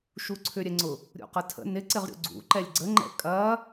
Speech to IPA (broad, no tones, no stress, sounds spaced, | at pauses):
ʃ u ǀʰ ʏ ɾʲ ɛ ŋ͡ǀ ʊ | ɾʲ ṵ q ɐ tʰ ə̰ n ɪ ǀ ɪ ʁ ɾʲ ṵ ɡ͡ǀ ṵ ǃ ɛ lʲ ɡ͡ǀ ə ŋ͡ǃ ɛ̰ kʼ ɐ